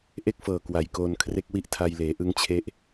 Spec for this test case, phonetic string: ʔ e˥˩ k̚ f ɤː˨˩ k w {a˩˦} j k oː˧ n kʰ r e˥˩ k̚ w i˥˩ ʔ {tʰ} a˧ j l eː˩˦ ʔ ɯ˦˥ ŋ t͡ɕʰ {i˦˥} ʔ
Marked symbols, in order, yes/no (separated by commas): no, yes, no